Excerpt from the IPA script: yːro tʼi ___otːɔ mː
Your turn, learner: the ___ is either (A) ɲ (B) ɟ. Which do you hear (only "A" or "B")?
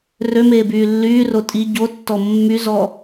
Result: B